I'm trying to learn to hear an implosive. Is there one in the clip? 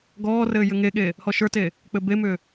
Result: yes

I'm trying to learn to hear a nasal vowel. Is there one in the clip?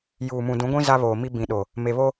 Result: yes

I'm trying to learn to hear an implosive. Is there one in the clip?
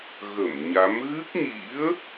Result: no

